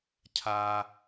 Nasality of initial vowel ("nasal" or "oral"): oral